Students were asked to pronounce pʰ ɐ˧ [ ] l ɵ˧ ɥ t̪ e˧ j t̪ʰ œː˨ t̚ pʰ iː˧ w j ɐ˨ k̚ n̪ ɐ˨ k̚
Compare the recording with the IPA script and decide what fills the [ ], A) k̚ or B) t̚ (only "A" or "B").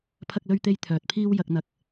A